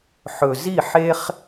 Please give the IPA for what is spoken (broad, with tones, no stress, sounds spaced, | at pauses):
ħ ɵ˧ z i˥˧ ħ e˥ χ